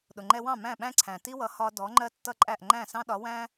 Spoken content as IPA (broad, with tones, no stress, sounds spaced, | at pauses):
ɗ ʊ˩ ŋ͡ǃ ɛ˧ w ɑ̃˥˩ m æ̃˥˩ ɓ æ̃˥ ǀʰ æ̃˩ t i˥ w ʌ˩˥ h ɒ˧ d ɔ˩˥ ŋ͡ǃ ɜ˥ tː ʌ˥ ǃʼ æ˥˩ ʔ ŋ͡ǃ æ̃˥˩ s ɑ̃˥ ɗ ɒ˩˥ w æ̃˥